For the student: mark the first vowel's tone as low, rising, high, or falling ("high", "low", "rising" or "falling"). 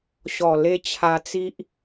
low